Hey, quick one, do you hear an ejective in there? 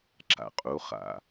yes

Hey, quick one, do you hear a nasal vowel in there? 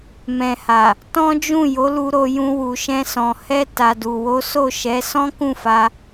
yes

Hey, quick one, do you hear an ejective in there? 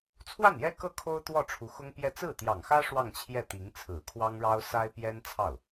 no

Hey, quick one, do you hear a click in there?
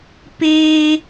no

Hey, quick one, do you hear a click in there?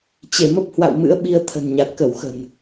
no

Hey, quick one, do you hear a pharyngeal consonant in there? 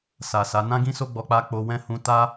no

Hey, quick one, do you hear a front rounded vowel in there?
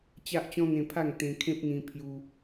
no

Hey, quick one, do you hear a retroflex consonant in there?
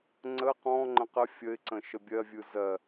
no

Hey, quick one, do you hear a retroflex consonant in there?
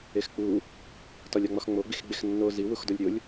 no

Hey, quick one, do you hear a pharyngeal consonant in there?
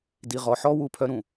yes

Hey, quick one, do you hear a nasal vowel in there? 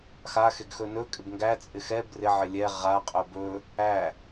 no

